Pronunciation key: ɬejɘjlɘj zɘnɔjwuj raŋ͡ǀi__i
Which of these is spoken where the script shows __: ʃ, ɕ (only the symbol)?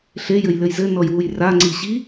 ɕ